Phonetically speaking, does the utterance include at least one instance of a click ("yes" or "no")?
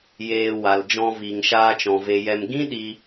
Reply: no